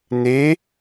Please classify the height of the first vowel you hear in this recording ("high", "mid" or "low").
mid